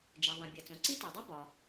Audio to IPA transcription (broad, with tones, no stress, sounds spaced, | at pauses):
d͡ʒ ɛ˩ ðˤ ɛ̃˩ bʲ ɐ˩ t͡s õ˩ ǀ i˦˥ t a˩ dˤ i˦˥ b ɒ˩